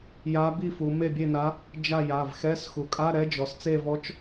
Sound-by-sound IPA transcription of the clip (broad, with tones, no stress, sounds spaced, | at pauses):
j a˧˥ b i˥˨ f u˩˧ m e˥˨ bʲ e˥˨ n a˧˥ | d͡ʒ a˥˨ j a˩˧˩ v x ɛ˧˥˧ s x u˩ kʼ a˧˥˧ ɾ ɛ˧˥ d͡ʒ ɔ˩ s t͡s e˥˨ v ɔ˧˥ t͡ʃ